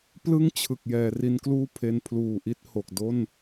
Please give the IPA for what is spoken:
p l ɯ˥˩ ŋ t͡ɕʰ ɯ˨˩ k̚ j ɛː˩˦ r i˧ n k l uː˥˩ pʰ e˧ n pʰ l uː˨˩ ʔ i˥˩ t̚ h o˨˩ k̚ d o˥˩ n

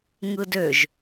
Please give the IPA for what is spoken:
ŋ ɯ d ø ʒ

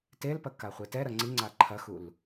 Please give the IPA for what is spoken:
t e l p ɐ k a χʷ e t ɛ ɾ ɐ ŋ͡ǀ i ŋ͡ǀ a ǃʰ ɐ x u l

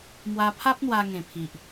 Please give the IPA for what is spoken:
m w a˧ pʰ a˦ p̚ n̪ w a˧ ŋ ẽ˨˩ pʰ i˨ ʔ

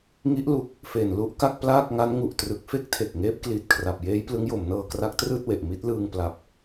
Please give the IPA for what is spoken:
ŋ i˦˥ ʔ l u˨˩ k̚ | f e˨˩ n l u˦˥ ʔ k a˥˩ k̚ p l aː˥˩ k̚ ŋ a˦˥ n ŋ u˨˩ ʔ t r ɯ˨˩ k̚ f e˥˩ k̚ tʰ e˨˩ k̚ ŋ eː˦˥ p̚ k l iː˨˩ t̚ kʰ r a˨˩ p̚ j eː˦˥ j p l ɯ˦˥ ŋ j o˩˦ m n ɤː˧ k r a˦˥ k̚ t r ɯː˥˩ t̚ w e˨˩ ʔ m i˦˥ t̚ l ɯː˧ ŋ p l a˦˥ p̚

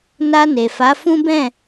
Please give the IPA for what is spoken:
n a˧ n e˨ f a˨˦ f ũ˦ b ɛ̃˦˨

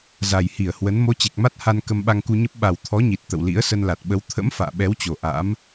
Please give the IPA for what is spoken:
z a˨˩ j h i˧˩ ə̯ h w ə˨˦ n m o˨˦ t͡ɕ e˨˩ k̚ m a˦˥ t̚ h a˧ n k ə˧ m ɓ a˧ ŋ k u˧ ɲ ə˦˥ p̚ ɓ a˨˩ w t̪ʰ ɔ˨˦ ɲ i˨˩ t̚ t̪ ə̰˧˨ w l ḭ˧˥ ə̯ s ə˧ n l a˨˩ t̚ ɓ ə˨˦ w t̪ʰ ə̰˧˥ m f a̰ː˧˨ ɓ ɛ˨˦ w t͡ɕ o˨˩ ʔ a̰˧˥ m

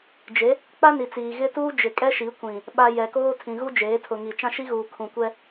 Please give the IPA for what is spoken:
d͡ʒ e˨˦ | k͡p a˦ n i˨ t͡s iː˨ ɣ ɪ˦ t uː˦ d͡ʒ ɪ˨ kʼ ɛ˦ ʃ i˨˦ kʷ ĩ˨ | ɓ a˨ j ɛ˨ k oː˦ tʰ ĩ˨ ɣ u˦ d͡ʒ eː˨˦ tʰ ʊ˨ ŋ i˨ t͡ʃ ã˦ ʃ i˦ ɣ uː˨ kʰ ũ˨ kʷ ɛ˦

